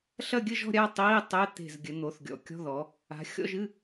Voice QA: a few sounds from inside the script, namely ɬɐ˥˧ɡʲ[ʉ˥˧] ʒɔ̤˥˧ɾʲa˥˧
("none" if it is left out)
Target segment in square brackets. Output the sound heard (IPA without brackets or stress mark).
ɘ˥˧